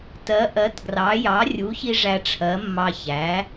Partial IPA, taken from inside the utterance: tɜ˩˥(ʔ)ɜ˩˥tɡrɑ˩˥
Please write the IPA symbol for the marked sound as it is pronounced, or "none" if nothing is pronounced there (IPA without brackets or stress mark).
ʔ